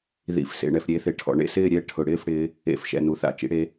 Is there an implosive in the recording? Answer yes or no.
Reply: no